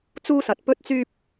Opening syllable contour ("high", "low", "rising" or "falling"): high